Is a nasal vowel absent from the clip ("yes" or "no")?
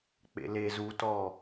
yes